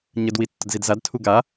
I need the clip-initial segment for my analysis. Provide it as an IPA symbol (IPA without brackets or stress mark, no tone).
ɲ